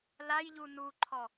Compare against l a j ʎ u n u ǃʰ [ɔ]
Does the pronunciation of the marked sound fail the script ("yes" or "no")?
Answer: no